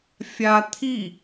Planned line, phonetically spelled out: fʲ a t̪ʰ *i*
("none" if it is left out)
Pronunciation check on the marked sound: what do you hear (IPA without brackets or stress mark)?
i